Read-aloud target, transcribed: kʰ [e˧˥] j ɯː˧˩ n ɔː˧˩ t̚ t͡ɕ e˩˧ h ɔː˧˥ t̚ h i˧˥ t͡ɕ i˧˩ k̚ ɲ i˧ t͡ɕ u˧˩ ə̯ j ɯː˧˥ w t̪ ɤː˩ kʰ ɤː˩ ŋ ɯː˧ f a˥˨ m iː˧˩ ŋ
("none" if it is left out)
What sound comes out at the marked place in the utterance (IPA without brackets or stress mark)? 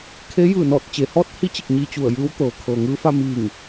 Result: e˧˥